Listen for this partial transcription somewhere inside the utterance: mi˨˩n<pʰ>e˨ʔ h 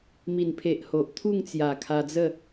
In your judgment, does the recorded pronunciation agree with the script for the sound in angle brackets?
yes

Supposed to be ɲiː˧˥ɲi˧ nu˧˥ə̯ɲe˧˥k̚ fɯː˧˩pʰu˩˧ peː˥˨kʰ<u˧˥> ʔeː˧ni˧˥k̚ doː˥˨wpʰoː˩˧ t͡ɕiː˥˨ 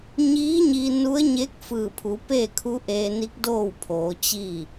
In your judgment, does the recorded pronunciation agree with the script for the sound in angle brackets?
yes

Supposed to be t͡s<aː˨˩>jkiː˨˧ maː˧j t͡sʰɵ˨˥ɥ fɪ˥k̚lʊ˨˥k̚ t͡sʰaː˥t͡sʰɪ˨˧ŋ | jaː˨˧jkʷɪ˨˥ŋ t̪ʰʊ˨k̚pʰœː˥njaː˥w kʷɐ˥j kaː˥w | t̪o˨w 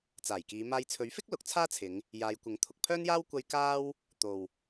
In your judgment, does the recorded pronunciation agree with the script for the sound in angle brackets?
yes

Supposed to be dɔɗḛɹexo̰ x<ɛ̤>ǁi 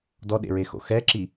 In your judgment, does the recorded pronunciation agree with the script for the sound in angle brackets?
no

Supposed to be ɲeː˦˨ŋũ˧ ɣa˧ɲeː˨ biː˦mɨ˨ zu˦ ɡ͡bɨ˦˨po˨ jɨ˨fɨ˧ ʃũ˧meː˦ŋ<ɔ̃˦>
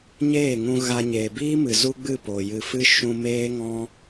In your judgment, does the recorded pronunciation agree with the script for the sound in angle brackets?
yes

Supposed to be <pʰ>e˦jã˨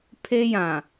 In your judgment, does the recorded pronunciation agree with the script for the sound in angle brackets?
yes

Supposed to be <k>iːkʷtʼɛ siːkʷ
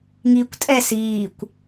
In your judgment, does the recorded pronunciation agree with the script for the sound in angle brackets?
no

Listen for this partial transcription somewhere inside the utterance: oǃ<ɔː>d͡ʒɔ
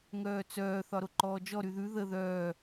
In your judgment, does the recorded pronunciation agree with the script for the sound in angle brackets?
yes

